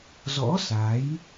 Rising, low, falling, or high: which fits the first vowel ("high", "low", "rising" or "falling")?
rising